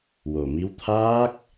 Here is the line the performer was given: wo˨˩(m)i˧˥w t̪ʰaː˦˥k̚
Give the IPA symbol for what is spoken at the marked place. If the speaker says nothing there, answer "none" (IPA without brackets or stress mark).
m